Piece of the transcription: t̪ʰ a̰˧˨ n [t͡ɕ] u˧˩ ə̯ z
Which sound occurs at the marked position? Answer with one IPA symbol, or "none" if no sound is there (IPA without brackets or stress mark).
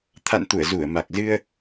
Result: t̪